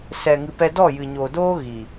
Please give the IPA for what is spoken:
sɛ˨ŋɨ˨ pɛ˧dɔ˦˨ jɨ˨ɲoː˨doː˦ ɣi˨

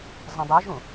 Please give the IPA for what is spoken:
zˤə̃dˤɛʒũ

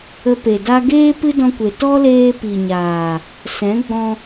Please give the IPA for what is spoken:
ə˧pe˨da˦ ɡeː˦ pɨ˦dɔ̃˧kʷe˨ tɔ˦leː˧ pi˨ɲaː˨ | sɛ̃˨˦ɡ͡bɔ̃˧

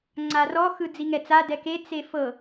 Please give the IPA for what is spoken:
ŋ͡ǀarɔ xɯd͡ziŋɛt͡sa dɛke t͡sefɤ

